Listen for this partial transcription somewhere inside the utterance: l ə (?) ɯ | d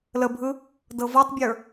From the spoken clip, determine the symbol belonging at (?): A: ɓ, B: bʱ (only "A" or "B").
B